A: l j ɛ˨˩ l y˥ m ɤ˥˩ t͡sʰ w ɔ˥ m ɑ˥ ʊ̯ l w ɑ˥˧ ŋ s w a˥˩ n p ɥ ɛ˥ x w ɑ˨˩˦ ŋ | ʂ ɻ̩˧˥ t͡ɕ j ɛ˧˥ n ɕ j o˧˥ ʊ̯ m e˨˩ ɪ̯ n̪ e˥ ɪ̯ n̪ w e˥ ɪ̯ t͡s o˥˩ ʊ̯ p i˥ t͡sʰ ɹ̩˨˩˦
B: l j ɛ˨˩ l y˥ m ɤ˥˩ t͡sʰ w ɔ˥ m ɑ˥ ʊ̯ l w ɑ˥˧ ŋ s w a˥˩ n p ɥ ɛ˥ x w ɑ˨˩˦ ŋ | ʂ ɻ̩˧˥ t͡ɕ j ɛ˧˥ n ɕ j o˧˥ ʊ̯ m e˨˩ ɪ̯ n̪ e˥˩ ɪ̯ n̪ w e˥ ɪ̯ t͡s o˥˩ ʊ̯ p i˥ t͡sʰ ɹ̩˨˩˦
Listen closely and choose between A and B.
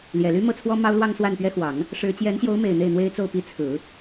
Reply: B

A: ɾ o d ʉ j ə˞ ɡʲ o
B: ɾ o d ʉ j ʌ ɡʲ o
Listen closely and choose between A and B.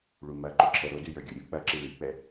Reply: A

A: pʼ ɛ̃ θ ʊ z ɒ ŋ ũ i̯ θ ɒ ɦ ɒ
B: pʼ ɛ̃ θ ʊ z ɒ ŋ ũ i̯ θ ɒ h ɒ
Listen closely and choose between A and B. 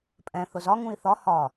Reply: B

